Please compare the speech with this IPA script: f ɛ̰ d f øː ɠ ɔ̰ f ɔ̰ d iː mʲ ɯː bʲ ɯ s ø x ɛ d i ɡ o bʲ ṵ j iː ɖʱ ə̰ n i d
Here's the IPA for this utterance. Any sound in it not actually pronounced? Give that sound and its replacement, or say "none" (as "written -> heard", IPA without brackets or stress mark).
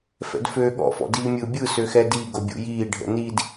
none